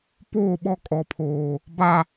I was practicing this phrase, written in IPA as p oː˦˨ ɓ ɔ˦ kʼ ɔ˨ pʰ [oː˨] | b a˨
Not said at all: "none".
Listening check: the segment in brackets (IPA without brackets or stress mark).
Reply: oː˨